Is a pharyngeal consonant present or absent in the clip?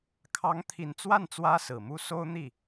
absent